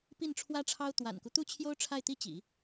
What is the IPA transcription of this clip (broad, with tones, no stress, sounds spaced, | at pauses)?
p i˥˩ n ʈ͡ʂʰ w ä˥ ʈ͡ʂʰ ɑ˥ ʊ̯ t̪ w a̰˨˩ n k u˦ t̪ u˥ t͡ɕʰ j o˥ ʊ̯ ʈ͡ʂʰ a˥˩ ɪ̯ t̪ i˥ t͡ɕ ḭ˨˩˦